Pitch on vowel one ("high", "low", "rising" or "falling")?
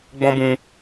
high